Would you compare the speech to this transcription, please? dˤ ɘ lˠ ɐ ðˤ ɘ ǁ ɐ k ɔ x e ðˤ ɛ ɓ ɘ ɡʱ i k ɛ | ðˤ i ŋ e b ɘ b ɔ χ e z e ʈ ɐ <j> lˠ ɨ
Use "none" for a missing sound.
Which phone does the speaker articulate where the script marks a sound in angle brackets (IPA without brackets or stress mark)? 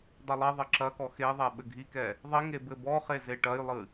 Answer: j